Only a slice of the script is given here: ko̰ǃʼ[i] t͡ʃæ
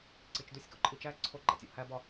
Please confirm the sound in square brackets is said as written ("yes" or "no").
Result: yes